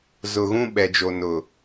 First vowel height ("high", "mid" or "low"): high